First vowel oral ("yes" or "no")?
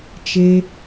yes